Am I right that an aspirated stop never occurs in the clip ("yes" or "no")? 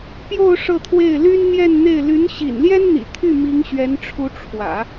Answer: no